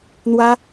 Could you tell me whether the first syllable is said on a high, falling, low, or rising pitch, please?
high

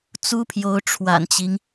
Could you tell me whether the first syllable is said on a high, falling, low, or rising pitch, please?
high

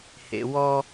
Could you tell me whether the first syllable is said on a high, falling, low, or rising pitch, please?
low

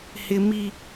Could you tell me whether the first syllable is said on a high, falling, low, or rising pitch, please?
high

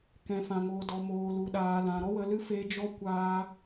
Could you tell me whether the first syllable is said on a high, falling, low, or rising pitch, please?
low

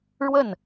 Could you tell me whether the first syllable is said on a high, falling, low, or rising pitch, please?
falling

